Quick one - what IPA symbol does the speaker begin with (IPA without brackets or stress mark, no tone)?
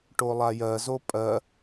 ʈ